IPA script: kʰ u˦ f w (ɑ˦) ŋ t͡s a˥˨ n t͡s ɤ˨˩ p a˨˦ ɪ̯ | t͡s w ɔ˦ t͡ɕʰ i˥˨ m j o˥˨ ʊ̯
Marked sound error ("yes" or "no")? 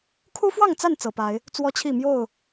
yes